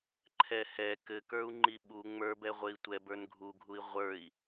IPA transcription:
ǃʰɛhɛ kɘkə˞u̯ŋ͡ǃi ɓu ŋ͡mə˞ bɛʁʷɘi̯tʷɛb ə˞nɡʱuɡʱui̯ ʁʷə˞i̯

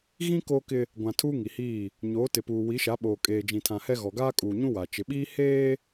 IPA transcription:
ɣĩ˦ koː˦kɪ˦ | ɡʷã˨ tʰuː˦ŋi˨hiː˦˨ | ɲoː˨˦tɪ˨puː˨ wi˨˦ʃa˨˦ɓoː˨kʼeː˨ d͡ʒĩ˨tʰã˨hɛ˦ ɣɔ˨ɡaː˦kʼuː˨ɲũ˦ wa˨ t͡ʃɪ˨ɓiː˦ heː˦

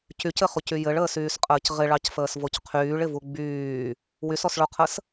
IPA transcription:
cycɘχucy jɘɭəːsyːsqʼəːc ʁɪɭɑcfəːsvoc qʰyːɭɪvu ɡ͡byː | wysɔsɭoqʰəs

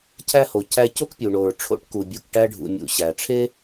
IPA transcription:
cʰæ˧ho˩ cʰæ˧co˥kpʲu˩ ɳo˩ɹ ʈ͡ʂʰo̰˧ʈku˩bʲu˩k ʈæ˧ɖʱṵ˩mʲṵ˩ ɕæ˩ʈ͡ʂʰe˥

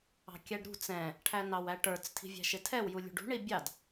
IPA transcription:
ɑ̤kʲæɖɾṳ t͡sɛ̃ | ʈʰænɑwæʈə˞t͡s tʰi̤vʲæ̤ʃɪtʰɛw julʲṳɖṳ ɳibʲɑd

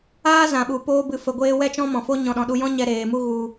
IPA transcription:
aː˦zã˨ɓu˨ poː˧bɨ˨fə˨ɡʷeː˧ wɛ˦t͡ʃɔ̃˦mɔ̃˨fo˦ ɲɔ̃˨ɗɔ̃˨ ɗu˧jɔ̃˦ɲɛ˧ ɾeː˨mu˦ɣu˧

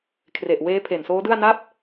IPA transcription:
kʰre˨˩ʔweː˦˥ pʰe˨˩nsoː˦˥dɯ˥˩a̯ na˥˩p̚

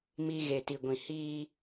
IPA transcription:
mi˨ ɣe˨ti˨ɡʷĩ˨ hiː˦

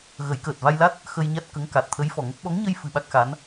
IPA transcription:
ɣə˨˩˦jkəː˨˩t̚ va˧jla˦˥t̚ | xə˧j ɲa˦˥t̚kə˧˥ŋka˨˩t̚ t̪ʰə˧˥jfɔ˨˩ŋə˦˥k̚ ɓɔ˧˥ŋɲə˧jfɨ˨˩˨ ɓa˦˥k̚xa˧˥n

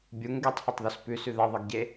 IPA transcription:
bʲuŋ ɡetˤhetˤðos pʉsʉ ðɐðˤɨɡɟe

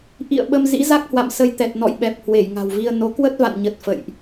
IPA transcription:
ʔḭ˧˨ə̯ɓə˧m zḭ˧˥ za˦˥k̚hwa̰˧˨msə˧j t̪ɛ˨˩t̚nɔ̰˧˨jɓɛ˨˩p̚ hwe˧˩jŋa̤˨˩wvi˧ə̯ no˨˦ kwə˦˥t̚va̰˧˨nɲə˨˩t̚ fə̰˧˨jʔ

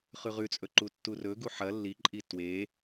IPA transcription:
χʉʁʉt͡sʼɵ ǃutːurɵɡu ħɐ lːiǃʼi twe

